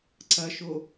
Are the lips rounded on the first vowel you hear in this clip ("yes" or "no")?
no